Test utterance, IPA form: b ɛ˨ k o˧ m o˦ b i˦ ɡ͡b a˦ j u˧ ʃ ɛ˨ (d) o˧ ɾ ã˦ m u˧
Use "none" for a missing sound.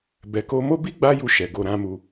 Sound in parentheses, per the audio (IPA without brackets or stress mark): ɡ